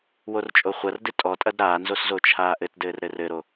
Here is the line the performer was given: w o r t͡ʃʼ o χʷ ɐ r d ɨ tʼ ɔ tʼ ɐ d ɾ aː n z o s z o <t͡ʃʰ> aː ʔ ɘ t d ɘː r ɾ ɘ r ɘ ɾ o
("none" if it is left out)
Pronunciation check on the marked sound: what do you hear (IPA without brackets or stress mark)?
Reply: t͡ʃʰ